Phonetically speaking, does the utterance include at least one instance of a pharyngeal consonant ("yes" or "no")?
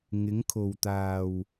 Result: no